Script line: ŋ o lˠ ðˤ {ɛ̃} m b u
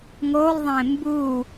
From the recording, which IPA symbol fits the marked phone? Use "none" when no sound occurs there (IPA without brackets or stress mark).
ẽ